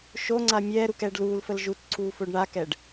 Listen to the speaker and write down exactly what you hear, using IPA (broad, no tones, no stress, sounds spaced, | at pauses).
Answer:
ʃ o ŋ͡ǀ a mʲ ɛː ɾ u k ɛː ɖ l uː l f ə l ʒ u t ǀʰ uː f o ɖ ɳ a k ɛ ɖ